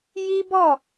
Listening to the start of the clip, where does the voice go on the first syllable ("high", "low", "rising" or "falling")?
high